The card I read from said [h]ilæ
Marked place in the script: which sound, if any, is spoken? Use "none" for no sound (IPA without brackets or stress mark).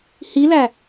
h